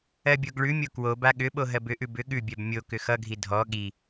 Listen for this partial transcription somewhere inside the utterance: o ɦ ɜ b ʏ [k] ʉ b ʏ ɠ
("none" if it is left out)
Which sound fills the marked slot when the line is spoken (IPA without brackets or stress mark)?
ʔ